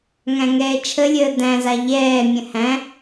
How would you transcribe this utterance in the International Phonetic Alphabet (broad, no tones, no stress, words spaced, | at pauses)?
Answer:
ŋæ̃ŋɛːt͡ʃʰəlʲəː dæ̃za ʎɛːmʲə̃ hæ̃